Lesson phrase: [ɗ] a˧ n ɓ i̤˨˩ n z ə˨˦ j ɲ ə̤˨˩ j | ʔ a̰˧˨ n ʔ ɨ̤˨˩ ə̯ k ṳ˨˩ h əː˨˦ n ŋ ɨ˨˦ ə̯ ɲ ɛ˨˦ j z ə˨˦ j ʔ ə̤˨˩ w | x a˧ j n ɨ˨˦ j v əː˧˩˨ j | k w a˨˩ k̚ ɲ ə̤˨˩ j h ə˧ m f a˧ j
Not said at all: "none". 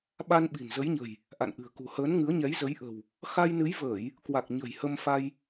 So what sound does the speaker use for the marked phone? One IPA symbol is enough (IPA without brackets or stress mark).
ɓ